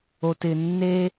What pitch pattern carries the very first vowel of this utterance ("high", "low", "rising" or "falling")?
low